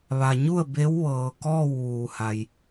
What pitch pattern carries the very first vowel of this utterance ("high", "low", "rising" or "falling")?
low